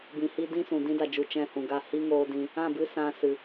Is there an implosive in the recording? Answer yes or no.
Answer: no